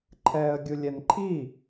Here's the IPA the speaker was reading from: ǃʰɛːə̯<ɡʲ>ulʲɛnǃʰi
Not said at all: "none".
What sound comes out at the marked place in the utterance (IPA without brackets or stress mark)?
ɡʲ